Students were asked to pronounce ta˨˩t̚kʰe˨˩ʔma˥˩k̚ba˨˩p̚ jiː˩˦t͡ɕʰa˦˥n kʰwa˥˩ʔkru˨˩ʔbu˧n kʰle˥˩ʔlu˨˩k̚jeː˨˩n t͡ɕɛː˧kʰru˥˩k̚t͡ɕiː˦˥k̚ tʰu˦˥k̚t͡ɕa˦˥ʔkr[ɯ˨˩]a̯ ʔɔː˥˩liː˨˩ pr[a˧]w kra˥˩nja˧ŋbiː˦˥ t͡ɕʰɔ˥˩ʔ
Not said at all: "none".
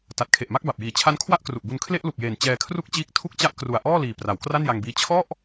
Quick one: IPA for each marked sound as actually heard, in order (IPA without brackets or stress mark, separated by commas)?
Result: u˨˩, a˩˦